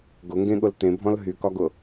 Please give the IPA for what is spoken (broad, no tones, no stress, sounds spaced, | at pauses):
ɡ ʊ ŋ ɡ ẽ ɠ ʊ l t ẽ bʱ ɔ̃ l ɦ y k ɒ ɡ ʊ